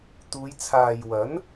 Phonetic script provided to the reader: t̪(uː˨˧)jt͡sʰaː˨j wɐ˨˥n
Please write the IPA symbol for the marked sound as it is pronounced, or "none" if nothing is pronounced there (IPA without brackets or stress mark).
uː˨˧